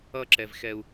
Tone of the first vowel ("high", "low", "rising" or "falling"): high